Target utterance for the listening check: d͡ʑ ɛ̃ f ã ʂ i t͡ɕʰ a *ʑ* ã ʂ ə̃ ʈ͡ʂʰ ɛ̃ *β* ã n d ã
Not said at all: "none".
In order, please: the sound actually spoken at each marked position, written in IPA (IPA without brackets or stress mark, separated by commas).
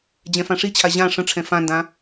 ʑ, f